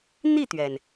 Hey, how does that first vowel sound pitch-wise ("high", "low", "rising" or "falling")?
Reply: falling